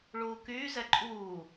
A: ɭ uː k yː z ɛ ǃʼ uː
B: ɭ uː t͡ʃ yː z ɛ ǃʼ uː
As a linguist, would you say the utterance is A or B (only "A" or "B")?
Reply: A